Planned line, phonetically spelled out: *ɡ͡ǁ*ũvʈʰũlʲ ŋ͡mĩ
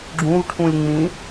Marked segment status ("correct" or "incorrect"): correct